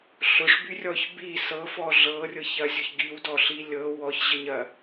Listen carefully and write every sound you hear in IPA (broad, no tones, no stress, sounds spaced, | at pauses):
ɬ ʊ ʂ b y rʲ ɔ ç b i s ɤ f ɔ ɮ ɤ rʲ ɤ ç ɐ zʲ ʊ ç ɡ i w d ɔ ɬ i lʲ ɤ w ɔ ç ʑ ə ɲ ɐ